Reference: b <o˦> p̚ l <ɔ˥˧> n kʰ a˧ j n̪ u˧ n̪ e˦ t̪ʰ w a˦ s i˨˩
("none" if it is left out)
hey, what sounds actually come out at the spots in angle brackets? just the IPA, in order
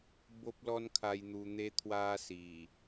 o˦, ɔ˦

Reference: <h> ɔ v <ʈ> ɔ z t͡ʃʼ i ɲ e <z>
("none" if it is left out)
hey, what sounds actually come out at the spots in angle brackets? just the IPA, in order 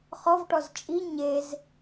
χ, ʈ, z

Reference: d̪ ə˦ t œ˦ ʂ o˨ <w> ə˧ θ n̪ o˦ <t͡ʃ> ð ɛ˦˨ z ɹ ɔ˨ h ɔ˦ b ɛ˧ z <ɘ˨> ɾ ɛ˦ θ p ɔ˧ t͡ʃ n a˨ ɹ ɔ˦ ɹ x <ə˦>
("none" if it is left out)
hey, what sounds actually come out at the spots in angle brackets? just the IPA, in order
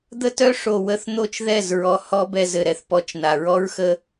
w, t͡ʃ, ɘ˨, ə˦

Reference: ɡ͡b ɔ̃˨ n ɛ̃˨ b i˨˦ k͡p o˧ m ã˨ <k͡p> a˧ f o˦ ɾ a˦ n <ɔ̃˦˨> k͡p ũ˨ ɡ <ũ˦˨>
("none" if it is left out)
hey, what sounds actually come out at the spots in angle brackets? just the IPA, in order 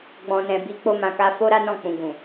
k, ɔ̃˦˨, ũ˨

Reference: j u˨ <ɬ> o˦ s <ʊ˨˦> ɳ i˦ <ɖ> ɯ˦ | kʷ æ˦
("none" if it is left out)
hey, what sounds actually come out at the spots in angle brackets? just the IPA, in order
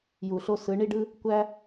ɬ, ɯ˨˦, ɖ

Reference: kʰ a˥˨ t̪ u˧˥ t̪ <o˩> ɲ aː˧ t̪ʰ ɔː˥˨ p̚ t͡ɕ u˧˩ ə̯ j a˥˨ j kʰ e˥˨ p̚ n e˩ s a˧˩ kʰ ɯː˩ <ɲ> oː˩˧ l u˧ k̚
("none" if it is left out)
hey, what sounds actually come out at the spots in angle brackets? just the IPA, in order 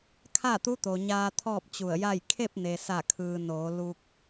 o˩, n

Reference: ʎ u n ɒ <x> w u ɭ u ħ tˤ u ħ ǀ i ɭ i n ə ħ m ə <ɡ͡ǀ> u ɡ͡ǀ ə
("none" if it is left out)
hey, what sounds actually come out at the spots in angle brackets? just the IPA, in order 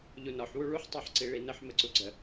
ħ, ǀ

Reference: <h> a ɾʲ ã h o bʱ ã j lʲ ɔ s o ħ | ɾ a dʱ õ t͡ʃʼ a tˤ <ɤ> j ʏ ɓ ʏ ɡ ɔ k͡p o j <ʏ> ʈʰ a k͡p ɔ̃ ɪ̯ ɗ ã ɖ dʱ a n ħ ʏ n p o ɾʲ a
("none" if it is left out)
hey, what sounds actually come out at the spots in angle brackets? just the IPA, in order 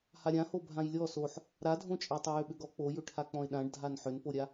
h, o, ʏ

